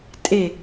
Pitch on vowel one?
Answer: falling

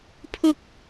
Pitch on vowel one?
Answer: high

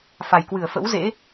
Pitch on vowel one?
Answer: low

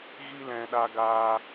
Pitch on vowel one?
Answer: high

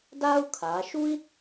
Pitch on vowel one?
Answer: high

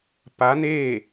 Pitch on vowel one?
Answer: rising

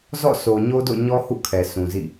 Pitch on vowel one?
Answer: falling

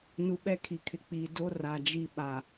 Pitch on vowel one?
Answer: low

